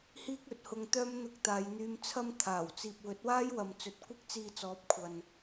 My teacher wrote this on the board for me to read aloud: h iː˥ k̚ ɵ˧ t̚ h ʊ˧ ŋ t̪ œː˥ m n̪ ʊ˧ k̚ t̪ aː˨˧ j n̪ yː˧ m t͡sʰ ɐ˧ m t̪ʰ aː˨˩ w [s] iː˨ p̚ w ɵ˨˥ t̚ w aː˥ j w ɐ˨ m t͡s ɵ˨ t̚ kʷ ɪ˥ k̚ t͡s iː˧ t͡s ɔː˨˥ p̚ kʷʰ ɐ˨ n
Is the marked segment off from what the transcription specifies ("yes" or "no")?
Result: yes